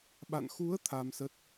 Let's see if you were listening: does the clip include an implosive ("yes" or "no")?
yes